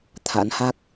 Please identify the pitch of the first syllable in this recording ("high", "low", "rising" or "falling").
rising